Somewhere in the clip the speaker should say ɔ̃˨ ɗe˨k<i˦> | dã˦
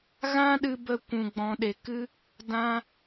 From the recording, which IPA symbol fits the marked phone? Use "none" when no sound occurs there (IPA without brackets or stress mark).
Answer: ɨ˦